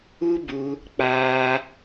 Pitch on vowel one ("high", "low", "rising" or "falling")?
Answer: high